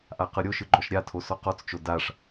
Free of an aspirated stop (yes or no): no